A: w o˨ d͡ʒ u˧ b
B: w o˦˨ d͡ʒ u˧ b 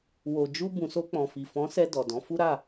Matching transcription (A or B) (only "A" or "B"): A